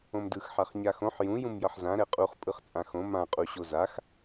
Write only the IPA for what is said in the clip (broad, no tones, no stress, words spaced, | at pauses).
õmdɯx ħaχɲaxõħ jũ jũmjʌħzã ɾɛqʼuχ pʼɯχt͡sʼãxõ mã qʼuɕozax